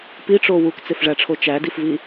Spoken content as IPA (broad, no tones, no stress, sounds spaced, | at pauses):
p i ʈ͡ʂ o w u k t͡s e f ʐ æ ʈ͡ʂʰ o t͡ʃ æ d i f v i